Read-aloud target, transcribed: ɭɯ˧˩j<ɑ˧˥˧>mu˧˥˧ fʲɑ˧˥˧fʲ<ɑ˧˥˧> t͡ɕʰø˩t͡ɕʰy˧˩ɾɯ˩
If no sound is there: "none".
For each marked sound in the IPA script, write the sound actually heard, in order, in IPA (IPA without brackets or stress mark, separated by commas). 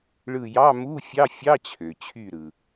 ɑ˧˥˧, ɑ˧˥˧